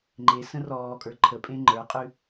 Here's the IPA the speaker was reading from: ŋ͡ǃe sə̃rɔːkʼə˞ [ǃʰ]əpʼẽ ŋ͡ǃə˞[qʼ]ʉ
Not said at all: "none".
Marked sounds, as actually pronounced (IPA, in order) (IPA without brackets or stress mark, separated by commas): ǃʰ, qʼ